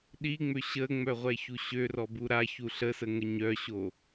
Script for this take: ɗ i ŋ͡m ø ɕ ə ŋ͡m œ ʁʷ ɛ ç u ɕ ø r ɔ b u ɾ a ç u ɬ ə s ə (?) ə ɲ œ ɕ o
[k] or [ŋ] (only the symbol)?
ŋ